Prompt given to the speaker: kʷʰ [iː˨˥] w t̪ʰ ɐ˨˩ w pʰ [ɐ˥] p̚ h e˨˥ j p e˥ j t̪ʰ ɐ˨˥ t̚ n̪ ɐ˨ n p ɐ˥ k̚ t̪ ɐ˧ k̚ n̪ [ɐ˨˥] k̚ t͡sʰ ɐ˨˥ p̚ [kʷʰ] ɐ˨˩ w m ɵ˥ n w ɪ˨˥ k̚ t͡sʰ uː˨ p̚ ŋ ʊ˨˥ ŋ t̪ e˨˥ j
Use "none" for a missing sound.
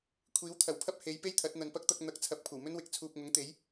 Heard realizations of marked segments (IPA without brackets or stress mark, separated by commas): iː˨˥, ɐ˥, ɐ˨˥, kʷʰ